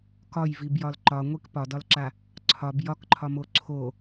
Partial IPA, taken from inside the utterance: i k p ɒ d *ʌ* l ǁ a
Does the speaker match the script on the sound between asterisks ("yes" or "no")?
no